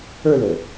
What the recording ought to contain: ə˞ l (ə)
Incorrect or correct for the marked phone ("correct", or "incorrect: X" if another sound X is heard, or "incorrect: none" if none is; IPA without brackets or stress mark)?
correct